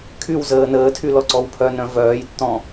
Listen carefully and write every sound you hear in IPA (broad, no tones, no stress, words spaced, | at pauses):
kʰywzəː nəːtʰylɔǀɔw pʰœnœ̃ vœːjtːɔ̃